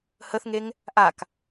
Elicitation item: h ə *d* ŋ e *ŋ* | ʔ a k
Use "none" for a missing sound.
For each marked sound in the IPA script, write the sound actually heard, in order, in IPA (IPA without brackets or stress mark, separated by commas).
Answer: θ, ŋ